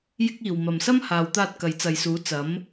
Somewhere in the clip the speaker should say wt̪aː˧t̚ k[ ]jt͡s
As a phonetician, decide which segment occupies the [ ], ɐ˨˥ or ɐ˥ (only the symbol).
ɐ˨˥